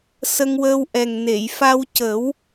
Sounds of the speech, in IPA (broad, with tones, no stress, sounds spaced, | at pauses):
s ə˧ ŋ w əː˧ w ʔ ɛ˨˩ ŋ n e˨˩˨ j f a˧ w c ə˨˩˦ w